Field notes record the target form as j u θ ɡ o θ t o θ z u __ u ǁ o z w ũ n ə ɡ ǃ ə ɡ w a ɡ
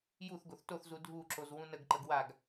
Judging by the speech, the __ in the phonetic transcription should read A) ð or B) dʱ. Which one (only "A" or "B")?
B